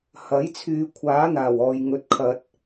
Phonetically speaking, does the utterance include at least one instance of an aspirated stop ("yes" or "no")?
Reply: yes